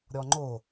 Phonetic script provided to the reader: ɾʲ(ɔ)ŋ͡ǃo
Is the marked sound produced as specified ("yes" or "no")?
yes